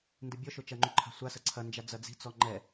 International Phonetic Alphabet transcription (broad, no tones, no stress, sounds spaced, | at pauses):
n d ɨ bʲ ɔ ʃ o t͡ʃ ɐ ŋ͡ǃ u ǃʰ a̤ sʷ a s ɐ ǀʰ ɐ n d͡ʒ a d͡z ɐ d͡z i̤ t͡s ɔ ŋ͡ǃ ɛ